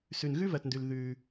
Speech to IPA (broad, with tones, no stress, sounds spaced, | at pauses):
s ʉ˩ n ɣ ʉ˥ v ɜ˩ t n d ʉ˩ l ð ʉ˩